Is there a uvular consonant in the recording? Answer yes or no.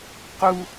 yes